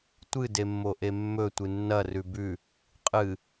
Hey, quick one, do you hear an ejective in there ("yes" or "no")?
yes